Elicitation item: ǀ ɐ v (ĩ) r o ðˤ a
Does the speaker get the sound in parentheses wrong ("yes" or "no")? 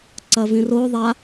no